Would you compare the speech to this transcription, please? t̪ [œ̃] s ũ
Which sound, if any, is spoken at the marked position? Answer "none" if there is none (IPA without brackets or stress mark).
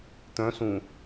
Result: œ̃